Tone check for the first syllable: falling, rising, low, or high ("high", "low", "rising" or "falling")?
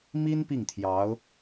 high